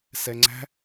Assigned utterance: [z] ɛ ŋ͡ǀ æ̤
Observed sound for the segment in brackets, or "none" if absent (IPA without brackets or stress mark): s